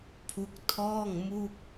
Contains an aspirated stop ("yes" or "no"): yes